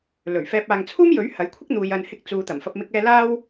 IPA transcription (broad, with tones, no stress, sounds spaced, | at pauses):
l ɵ˨˩ ɥ f ɛː˧ p̚ aː˨ ŋ t͡sʰ uː˥ m j ɵ˨˥ ɥ h ɐ˨˥ j kʷʰ ɪ˥ k̚ n̪ uː˨ j ɐ˨ n h ɪ˧ k̚ t͡s uː˨˧ t̪ ɐ˨˩ m f ɐ˧ p̚ m ɪ˧ k̚ ɛː˧ l aː˥ w